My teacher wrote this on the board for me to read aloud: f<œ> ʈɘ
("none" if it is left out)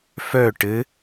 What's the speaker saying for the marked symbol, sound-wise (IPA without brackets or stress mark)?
œ